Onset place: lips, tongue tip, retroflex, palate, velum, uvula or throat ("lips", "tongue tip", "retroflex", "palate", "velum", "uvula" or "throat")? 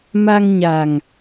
lips